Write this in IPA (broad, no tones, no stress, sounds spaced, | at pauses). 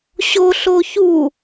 ɕ o ɬ o ç u